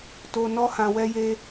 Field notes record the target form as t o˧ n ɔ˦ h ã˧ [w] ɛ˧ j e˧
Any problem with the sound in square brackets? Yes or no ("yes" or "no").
no